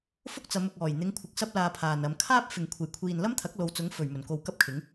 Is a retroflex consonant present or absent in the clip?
absent